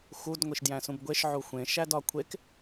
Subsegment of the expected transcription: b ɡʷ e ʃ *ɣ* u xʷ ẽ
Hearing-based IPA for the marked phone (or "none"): ʕ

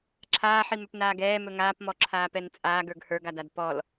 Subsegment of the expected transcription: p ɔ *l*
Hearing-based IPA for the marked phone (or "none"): l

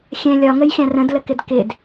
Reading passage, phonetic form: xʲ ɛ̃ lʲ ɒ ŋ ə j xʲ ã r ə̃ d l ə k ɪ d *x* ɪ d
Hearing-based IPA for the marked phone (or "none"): k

